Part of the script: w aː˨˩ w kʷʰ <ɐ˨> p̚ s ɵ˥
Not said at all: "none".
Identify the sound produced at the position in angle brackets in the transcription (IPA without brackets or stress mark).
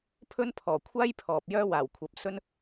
ɐ˨